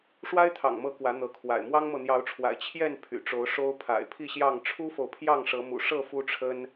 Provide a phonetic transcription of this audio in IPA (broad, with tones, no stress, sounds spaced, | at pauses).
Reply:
ʂ w a˦ ɪ̯ t̪ʰ ɑ̰˨˩ ŋ m ɤ˨˦ k w ä˨˦ n̪ ɤ˨˦ kʰ w a̰˨˩ ɪ̯ m w ɑ˦ ŋ m ɤ˨ n̪ j ɑ˨˦ ʊ̯ ʈ͡ʂʰ w a̰˨˩ ɪ̯ t͡ɕʰ j ɛ˥˨ n pʰ y̰˨˩ ʈ͡ʂ o˨˦ ʊ̯ ʂ o˦ ʊ̯ pʰ a̰˨˩ ɪ̯ pʰ i˥˨ ɕ j ɑ˥˨ ŋ ʈ͡ʂʰ u˦ f o˨ ʊ̯ pʰ j ɑ˥˨ ŋ ʂ ɤ˨˦ m ṵ˨˩ ʂ ɤ˥˨ f u˦ ʈ͡ʂʰ ə˦ n